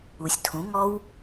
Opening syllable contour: low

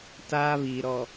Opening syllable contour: high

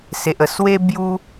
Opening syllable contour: low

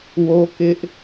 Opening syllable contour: high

